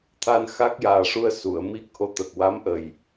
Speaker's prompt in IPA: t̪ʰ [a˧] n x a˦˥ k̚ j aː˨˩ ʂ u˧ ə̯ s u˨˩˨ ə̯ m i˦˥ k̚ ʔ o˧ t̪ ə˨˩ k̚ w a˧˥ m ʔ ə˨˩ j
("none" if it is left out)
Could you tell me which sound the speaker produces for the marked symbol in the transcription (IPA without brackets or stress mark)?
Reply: a˧